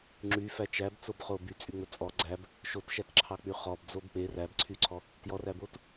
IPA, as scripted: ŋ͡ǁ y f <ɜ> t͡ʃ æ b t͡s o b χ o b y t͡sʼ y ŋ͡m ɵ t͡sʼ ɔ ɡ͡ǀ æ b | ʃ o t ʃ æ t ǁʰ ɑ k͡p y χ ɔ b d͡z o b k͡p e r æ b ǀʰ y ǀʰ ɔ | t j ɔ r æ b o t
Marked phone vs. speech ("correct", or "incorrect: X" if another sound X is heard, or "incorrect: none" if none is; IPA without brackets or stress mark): incorrect: æ